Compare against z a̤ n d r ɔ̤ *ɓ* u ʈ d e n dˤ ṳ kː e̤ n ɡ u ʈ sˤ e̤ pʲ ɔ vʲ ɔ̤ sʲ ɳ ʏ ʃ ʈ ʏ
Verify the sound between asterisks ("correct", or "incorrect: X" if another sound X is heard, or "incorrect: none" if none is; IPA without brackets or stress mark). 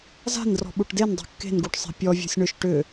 correct